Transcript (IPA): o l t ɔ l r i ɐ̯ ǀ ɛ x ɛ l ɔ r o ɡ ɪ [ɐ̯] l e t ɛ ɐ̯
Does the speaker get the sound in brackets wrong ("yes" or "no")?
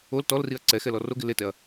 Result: yes